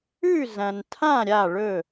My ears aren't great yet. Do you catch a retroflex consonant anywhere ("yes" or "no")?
yes